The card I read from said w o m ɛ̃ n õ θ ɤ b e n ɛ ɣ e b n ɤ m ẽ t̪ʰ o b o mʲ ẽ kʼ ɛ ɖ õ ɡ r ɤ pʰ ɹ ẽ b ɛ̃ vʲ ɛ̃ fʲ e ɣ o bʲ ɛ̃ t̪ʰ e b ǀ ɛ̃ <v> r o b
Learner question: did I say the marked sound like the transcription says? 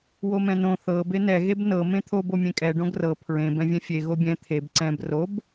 no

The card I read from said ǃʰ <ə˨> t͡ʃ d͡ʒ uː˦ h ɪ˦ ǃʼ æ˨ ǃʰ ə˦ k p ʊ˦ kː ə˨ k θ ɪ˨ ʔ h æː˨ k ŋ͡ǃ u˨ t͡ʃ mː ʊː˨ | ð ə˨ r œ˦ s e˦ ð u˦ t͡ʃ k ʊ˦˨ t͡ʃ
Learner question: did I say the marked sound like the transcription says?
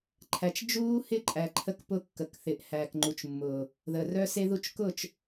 no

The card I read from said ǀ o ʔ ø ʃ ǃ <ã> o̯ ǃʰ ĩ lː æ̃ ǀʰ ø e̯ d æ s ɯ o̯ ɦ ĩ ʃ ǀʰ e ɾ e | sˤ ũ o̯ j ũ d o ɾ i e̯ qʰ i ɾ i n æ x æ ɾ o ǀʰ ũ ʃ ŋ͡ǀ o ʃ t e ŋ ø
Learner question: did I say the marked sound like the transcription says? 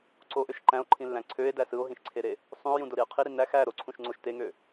no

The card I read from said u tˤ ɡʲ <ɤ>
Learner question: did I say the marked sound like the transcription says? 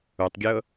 yes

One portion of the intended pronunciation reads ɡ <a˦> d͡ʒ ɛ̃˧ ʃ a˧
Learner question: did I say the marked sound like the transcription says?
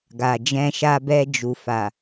no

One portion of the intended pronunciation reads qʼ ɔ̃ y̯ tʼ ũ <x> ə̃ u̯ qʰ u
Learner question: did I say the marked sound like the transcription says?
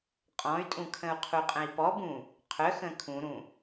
no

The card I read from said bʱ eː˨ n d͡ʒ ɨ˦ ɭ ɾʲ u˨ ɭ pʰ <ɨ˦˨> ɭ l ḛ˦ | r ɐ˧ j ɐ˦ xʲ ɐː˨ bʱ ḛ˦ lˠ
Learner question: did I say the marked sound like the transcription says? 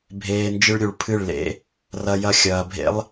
yes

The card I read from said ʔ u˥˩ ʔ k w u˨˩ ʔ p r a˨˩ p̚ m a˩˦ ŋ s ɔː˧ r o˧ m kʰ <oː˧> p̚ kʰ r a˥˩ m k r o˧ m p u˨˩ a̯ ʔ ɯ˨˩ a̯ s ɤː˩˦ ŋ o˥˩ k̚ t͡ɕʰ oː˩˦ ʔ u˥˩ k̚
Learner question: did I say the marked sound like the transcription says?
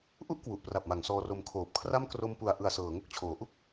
no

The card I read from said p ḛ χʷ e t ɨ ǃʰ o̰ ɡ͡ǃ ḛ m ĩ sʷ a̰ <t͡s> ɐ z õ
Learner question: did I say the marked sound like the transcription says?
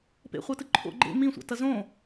no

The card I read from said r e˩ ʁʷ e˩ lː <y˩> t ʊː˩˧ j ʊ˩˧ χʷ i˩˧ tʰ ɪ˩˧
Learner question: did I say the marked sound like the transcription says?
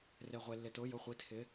no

